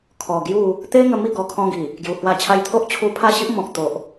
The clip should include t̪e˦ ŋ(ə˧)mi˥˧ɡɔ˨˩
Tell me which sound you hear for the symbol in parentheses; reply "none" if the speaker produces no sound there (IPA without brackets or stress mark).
ə˧